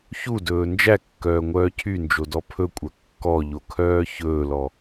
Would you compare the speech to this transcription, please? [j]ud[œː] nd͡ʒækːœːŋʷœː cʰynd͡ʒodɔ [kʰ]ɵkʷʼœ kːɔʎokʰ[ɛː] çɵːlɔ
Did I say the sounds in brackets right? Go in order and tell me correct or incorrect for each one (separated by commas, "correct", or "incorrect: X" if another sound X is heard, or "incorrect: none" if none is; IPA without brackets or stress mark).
incorrect: ç, incorrect: ɵː, incorrect: pʰ, incorrect: œː